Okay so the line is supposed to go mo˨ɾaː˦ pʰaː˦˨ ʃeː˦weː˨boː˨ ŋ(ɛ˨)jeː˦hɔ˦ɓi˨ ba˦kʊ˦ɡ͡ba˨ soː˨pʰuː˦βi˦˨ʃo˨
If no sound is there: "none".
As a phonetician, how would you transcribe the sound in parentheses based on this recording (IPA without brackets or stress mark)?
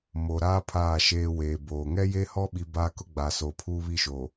ɛ˦